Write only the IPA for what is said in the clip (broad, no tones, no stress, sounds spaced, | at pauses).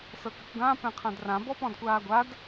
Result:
s ɤ k ɘ kʷ ɡ ã p ɛ̃ qʰ ã d r ã b ɔ p ɔ̃ d kʷ aː ɡʷ a d